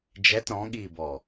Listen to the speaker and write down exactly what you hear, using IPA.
d͡ʒ ɛ t ɾ ɔ̃ ɠ iː b ɔ

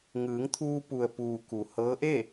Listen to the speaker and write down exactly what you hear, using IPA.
ŋ ɯː˩˧ ŋ t̪ʰ uː˧ p u˩ ə̯ p uː˩ k u˩ h ɤː˧˥ ʔ e˥˨

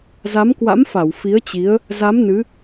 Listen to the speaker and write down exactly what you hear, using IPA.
z a˨˦ m k w a̰˧˥ m f a˧˩ w f i˨˦ ə̯ t͡ɕ i˨˦ ə̯ | z a˨˦ m n ɨ˨˦

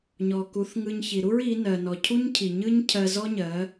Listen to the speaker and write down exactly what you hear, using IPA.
ɲ ɔ˨ k u˨˦ θ ŋ ɯ˧ ɲ ç i˨ ɾ u˦ ɹ i˨˦ n ɜ˨ n ɔ˨ cʰ u˦ ɲ cʰ i˨ ɲ ɯ˦ ɲ cʰ ɜ˧ z ɔ˦ ɲ ɜ˨˦

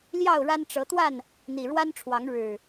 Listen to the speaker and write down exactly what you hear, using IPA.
l j ɑ˥˨ ʊ̯ ɻ a˦ n ʈ͡ʂ ɤ˨˦ t̪ w a˥˨ n | n̪ i˨˩ ɻ w a˦ n ʈ͡ʂʰ w ɑ˨˦ ŋ ɻ ɻ̩˨˩

